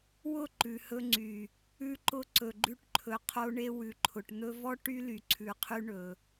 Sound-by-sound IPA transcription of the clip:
wʊ˦˨ ǃʉ˨hɵ˧ŋ͡ǀy˨ | ʉ˧ǃʊ˧ ǀɵ˨ɡ͡ǃʉ˧ʈǃʰɵ˨ qʰo˧ɳe˧ wʉ˨ǃʰʊ˨ʈ n̪ɵ˧vɔ˦ ʈy˦ly˨ ǀʰʉ˨qʰy˧ ɳɵ˨

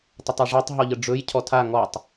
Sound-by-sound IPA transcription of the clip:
tˤətˤɛʐatˤ ɦɔʎəɖ͡ʐɵj cʰɔtʰa ŋɔtˤ

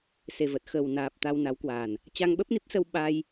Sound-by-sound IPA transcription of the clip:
se˨˩və˨˩t̚xə˨˩w naː˨˩p̚ t̪a˧wna˨˦wkwaː˨˩n | t͡ɕa˧ŋɓə˦˥p̚ni˦˥p̚sə˧w ɓa˧j

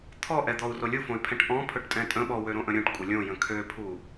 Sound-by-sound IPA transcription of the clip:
t̪ʰɔʔɛd̪ɔu̯ rolʲufõy̯pʰɛ̃ʈ ʔɔ̃ pʰɵʈtʼɛ̃tʼə̃ɓɔ wøɾõʔə̃ɾʲũʈ kʷʼəlʲõ jə̃kʰøpʰu

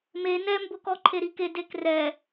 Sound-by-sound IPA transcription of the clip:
me nɛmbʊkɔ ǃʰeɾike dekrɛ

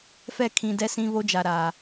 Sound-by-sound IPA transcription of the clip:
fɛ˦˨kʰĩ˨ dɛ˦sĩ˦βo˦ d͡ʒa˨ɾaː˨

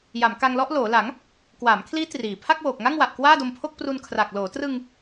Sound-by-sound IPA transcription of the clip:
ja˩˦mka˧ŋlɔ˦˥ʔ loː˩˦la˩˦ŋ | kwaː˩˦mkʰliː˦˥ triː˨˩ pʰa˥˩k̚woː˨˩k̚ŋa˥˩ŋwa˨˩ʔ kwaː˥˩do˧mpʰo˥˩k̚ pru˧nkʰra˨˩k̚ loː˩˦trɯ˧ŋ

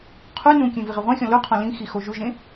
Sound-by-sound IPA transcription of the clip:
qʰu nũkʲẽ viʁeʁʷẽxʲɔ̃ luqʰɔ̃ lĩxi xoʒuʒẽ

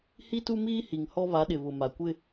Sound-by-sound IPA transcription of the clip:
hi˦tu˦ miː˦hi˨ŋhɔ˦ βa˨˦ɗɪ˨βʊ˨ ma˨kʷɪ˦

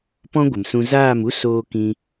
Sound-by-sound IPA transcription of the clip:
pɔ̃˦ɡʷə˨msũ˧ zaː˦˨mu˦ soː˦ kĩ˦

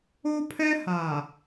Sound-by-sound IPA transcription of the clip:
o˦pʰɛ˦ha˨

